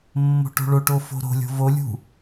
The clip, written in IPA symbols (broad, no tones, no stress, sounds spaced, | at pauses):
mː o̤ ʈ o̤ ɭ o ʈ o f o̤ ɾ o̤ lʲ o̤ v o lʲ ṳ